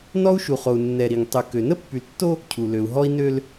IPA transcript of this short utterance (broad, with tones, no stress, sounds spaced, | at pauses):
n ɔ˦ u̯ ʃ u˨ χ o˨ u̯ nː ɛ˨ ɾ i˨ ŋ tˤ y˨ k ø˨ n ə˦ pː y˨ l tː o˦ | cʰ u˨ l ø˨ u̯ ɦ ɔ˦ i̯ n ø˦ l